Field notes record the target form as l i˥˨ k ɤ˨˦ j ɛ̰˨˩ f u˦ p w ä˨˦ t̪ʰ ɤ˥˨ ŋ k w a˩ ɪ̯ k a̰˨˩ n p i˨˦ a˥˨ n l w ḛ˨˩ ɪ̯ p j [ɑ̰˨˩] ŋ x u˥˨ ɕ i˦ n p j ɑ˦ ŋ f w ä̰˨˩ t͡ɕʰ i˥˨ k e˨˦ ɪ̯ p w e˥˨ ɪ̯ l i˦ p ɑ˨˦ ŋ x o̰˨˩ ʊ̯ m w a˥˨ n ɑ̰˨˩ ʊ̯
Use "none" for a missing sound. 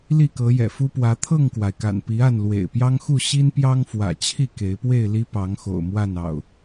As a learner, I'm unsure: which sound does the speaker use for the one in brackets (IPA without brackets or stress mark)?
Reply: ɑ˦